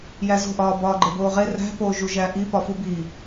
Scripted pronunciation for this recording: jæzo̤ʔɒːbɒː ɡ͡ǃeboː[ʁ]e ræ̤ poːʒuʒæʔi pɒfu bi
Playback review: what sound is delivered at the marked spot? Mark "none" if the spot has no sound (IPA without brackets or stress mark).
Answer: ʁ